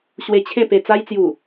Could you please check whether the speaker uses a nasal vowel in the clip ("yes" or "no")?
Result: yes